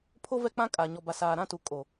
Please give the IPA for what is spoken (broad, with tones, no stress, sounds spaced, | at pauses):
pʰ o˦ v ɛ˦ k͡p ã˦ kʼ aː˨ ɲ ɔ˨ b a˨ s aː˨ ɾ ã˦˨ t u˨ kʼ o˨